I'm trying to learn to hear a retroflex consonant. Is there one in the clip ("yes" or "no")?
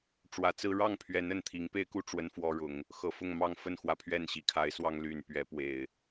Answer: yes